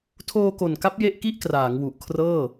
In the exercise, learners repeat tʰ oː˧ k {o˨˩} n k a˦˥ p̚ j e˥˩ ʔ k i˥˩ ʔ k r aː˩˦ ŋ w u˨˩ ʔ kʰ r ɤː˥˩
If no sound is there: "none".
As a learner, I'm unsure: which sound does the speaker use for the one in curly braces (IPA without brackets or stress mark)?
o˨˩